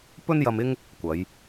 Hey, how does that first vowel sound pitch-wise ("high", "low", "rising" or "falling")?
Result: high